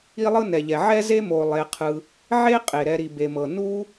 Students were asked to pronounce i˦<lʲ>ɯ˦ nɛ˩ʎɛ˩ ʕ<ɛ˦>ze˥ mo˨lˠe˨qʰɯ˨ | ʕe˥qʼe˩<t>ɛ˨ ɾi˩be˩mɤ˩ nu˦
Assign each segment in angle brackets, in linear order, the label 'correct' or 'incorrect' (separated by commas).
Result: incorrect, incorrect, incorrect